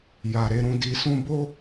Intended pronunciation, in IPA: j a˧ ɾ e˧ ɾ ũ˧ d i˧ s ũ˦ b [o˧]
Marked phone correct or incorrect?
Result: incorrect: o˦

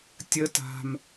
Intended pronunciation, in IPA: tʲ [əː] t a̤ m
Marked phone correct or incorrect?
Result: incorrect: ə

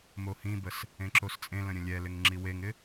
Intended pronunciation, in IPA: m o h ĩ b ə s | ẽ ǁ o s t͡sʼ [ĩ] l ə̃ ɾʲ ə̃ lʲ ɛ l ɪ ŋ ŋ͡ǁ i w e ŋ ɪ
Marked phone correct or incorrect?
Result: incorrect: ẽ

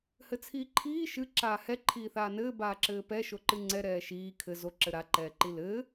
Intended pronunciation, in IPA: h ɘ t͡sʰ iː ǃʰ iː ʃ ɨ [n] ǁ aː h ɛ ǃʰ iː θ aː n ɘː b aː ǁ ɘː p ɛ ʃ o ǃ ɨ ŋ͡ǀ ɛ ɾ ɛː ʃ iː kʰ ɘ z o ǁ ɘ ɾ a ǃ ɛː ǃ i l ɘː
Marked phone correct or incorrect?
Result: incorrect: none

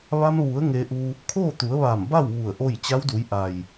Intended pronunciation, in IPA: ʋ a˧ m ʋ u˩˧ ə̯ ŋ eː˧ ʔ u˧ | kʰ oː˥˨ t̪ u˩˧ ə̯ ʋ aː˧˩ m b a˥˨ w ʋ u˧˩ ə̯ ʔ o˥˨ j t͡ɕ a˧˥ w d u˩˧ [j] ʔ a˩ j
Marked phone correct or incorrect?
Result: correct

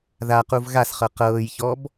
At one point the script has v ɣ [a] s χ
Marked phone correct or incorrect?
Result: correct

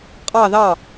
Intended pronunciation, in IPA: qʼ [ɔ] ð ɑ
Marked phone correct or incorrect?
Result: incorrect: ɑ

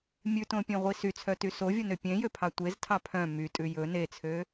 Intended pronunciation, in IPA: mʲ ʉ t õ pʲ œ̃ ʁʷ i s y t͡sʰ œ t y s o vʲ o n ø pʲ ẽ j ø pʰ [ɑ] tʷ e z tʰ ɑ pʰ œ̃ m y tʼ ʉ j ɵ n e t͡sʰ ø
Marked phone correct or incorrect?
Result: correct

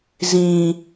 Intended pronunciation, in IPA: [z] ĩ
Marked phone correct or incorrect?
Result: correct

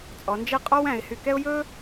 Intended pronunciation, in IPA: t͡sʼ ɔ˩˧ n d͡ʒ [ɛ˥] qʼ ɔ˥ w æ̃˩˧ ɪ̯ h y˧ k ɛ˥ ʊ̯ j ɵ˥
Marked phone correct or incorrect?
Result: incorrect: ɛ˥˧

